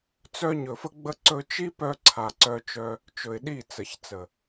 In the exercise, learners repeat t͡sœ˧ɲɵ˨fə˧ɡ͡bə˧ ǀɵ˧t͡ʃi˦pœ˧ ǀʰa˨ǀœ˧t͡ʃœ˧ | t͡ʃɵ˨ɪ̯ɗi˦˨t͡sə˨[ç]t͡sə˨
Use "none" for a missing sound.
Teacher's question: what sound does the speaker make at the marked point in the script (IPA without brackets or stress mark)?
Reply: ç